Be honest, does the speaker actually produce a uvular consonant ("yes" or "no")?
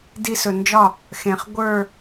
yes